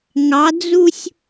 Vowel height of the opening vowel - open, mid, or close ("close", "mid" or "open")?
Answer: open